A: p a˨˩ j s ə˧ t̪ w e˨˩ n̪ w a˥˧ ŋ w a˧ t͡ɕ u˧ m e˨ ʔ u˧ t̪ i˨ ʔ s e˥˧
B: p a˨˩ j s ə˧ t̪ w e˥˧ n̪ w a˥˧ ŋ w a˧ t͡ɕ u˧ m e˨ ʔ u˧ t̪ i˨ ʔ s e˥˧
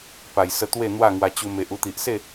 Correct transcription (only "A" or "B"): B